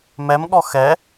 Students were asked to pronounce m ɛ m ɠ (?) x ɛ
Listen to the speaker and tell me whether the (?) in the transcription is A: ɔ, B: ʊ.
A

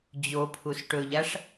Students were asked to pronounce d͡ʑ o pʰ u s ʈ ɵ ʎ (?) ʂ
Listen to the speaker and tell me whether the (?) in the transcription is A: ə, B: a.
B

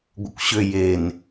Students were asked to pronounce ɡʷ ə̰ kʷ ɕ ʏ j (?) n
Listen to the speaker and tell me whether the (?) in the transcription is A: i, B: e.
B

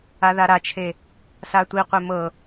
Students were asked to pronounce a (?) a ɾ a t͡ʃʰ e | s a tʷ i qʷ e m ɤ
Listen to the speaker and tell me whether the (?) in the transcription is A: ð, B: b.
A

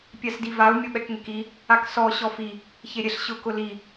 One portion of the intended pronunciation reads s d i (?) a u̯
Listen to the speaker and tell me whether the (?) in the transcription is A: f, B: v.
B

